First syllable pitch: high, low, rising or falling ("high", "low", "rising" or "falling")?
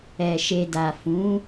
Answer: low